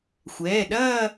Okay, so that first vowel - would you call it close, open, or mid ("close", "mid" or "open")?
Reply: mid